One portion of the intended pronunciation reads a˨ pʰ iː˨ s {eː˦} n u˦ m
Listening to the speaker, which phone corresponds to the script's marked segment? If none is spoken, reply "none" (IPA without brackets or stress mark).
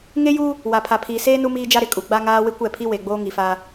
eː˦